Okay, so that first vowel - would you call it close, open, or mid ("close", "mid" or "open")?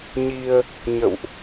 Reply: close